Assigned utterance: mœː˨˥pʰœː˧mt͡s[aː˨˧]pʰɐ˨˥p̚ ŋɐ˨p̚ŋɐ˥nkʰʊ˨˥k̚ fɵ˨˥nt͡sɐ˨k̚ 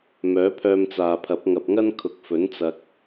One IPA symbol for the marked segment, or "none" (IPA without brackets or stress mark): aː˨